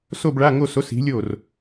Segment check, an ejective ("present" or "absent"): absent